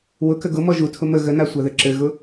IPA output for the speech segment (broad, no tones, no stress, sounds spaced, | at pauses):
w ʊ k ə ɡ ʊ m ɔ ʒ u tʰ ʊ m ə ɣ ə n a sʷ a ð ɘ ǁ ɘ ɣ ʊ